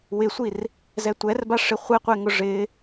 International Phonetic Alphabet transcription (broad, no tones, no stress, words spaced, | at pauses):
wɪsʷir | zɛtʷɛrbaʂɪ χʷɛqʷɛŋʊ ʐɪ